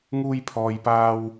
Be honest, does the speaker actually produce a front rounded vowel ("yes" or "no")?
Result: no